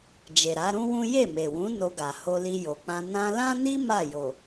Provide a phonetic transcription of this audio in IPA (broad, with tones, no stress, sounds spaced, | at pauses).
d͡ʒ e˨ ɾ a˨˦ ɾ ũ˦ w ũ˦ j e˦˨ m e˨ w ũ˨˦ n o˧ ɡ a˨ h o˧ l i˧ j o˨ k͡p ã˧ n ã˧ l ã˦ n i˦ m a˦˨ j o˨